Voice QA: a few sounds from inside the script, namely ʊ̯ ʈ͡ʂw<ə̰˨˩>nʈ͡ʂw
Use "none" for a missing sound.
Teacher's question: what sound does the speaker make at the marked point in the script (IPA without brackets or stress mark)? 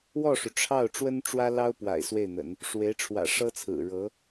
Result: ə˥